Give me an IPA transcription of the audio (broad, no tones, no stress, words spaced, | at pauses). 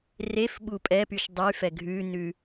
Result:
refɓu pʼɛpyʃ dˤyfɛ ɡʱʉnʉ